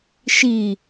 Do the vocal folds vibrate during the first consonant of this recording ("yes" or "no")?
no